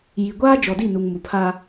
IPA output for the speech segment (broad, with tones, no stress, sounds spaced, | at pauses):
j i˨ ɡʷ aː˦ d͡ʒ ɔ˨ d i˦˨ n u˨ ŋ m u˨ pʰ a˦